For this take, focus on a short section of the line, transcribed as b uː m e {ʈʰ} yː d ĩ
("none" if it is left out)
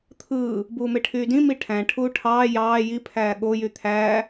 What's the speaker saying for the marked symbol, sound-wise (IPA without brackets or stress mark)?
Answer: ʈʰ